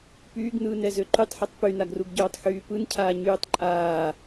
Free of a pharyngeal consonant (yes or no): no